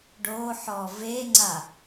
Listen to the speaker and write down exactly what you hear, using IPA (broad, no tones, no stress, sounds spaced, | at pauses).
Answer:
ɖ oː ħ ɔː v e ŋ͡ǀ a